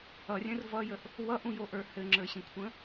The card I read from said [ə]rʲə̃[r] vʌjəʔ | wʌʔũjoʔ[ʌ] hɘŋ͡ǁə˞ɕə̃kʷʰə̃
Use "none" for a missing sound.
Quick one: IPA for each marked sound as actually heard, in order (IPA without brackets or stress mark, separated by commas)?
ʌ, r, ə˞